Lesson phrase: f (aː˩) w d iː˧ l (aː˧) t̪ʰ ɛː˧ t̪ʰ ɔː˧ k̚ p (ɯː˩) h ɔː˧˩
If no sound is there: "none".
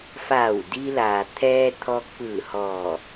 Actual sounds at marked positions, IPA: aː˧˩, aː˩, ɯː˧˩

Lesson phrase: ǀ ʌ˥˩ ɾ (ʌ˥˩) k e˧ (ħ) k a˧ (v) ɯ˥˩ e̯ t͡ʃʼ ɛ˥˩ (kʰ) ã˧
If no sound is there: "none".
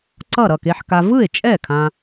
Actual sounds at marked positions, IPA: ʌ˥˩, ħ, v, kʰ

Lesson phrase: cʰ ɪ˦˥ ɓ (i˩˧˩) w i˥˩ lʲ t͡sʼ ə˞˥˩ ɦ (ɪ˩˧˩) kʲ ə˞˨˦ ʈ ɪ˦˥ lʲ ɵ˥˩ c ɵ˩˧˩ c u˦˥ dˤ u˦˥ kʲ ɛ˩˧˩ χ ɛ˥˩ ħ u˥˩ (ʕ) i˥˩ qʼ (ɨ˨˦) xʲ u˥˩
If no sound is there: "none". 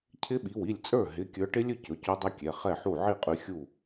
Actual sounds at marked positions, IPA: i˩˧˩, ɪ˩˧˩, ʕ, ʉ˨˦

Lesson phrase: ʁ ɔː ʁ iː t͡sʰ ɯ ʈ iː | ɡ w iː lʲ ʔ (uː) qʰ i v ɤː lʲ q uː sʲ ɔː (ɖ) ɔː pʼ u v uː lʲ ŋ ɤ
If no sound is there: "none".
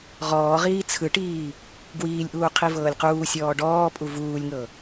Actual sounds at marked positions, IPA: uː, ɖ

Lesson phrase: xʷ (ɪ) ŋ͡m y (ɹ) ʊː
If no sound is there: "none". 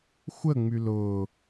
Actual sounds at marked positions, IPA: ə, l

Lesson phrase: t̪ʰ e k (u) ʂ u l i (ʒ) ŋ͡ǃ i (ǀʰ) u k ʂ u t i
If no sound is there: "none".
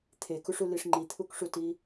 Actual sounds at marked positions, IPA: u, ʂ, t̪ʰ

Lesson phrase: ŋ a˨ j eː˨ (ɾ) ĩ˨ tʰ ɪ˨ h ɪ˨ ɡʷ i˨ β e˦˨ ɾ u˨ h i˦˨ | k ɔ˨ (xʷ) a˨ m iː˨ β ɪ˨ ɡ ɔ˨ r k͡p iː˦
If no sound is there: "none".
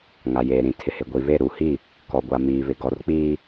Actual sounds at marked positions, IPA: ɾ, ɡʷ

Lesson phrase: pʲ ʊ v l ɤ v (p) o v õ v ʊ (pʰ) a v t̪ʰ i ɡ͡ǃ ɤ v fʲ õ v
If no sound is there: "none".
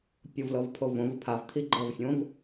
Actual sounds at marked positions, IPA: pʰ, pʰ

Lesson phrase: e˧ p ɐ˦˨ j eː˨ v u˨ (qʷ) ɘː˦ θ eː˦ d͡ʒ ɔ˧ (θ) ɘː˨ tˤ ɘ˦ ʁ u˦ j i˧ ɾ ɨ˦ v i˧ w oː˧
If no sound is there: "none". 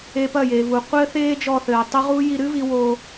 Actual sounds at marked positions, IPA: qʷ, θ

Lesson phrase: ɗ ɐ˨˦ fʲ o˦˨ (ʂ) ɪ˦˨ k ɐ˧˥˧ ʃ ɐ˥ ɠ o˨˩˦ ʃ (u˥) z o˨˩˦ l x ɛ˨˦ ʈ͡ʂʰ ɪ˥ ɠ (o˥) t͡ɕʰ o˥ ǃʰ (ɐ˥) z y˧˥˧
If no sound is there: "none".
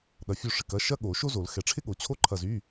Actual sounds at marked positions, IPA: ʂ, o˥, o˨˦, ɐ˦˨

